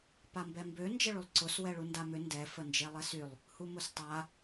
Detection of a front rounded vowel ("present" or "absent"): present